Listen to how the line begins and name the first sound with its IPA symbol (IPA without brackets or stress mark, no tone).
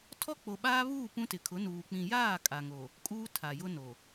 tʰ